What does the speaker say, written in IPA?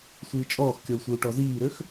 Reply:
sʷ iː t͡ʃʼ ɔː x kʲ ɔ u̯ sʷ i u̯ ʈ ɔ z iː ɾ ø x

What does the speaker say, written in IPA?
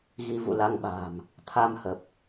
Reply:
ɣ i˧ v ṵ˧˨ l a˧ ŋ ɓ a̤ː˨˩ m | t̪ʰ a˧ m h ə˨˩ p̚

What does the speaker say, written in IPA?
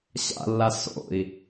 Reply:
ɕ a̰ lː a s o̰ i̯

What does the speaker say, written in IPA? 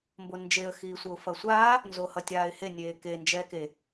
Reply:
m b o n d͡ʒ e ə̯ x iː sʷ ʌ ʊ̯ f ʌ sʷ aː | n z o h ʌ tʲ aː ɪ̯ h e nʲ eː k e n d͡ʒ ɛː k e

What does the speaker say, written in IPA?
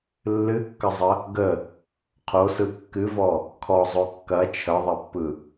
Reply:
lː ɨ kː ə zˤ ə | ɡ ə | qʰ o s ɯ kː ɨ v ɔ | kʰ ɔ zˤ o kː ɐ t͡ʃʰ ə ðˤ ɐ pː ɯ

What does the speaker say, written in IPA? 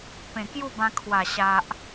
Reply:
p ẽ˨˩ k j u˥˧ b ã˧ kʰ w a˨˩ ɕ a˨ ʔ

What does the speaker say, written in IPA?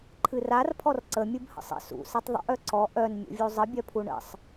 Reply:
ǃʰ ɨ r a r pʰ ɔ r ǀ ə mʲ ɨ b h ə̰ sˤ ə̰ s ṵ s ɨ tˤ ðˤ ə̰ ʔ œ ǀ ɔ ʔ œ n mʲ ṵ vʲ u zˤ ə bʲ œ pʰ u ɳ ə̰ sˤ

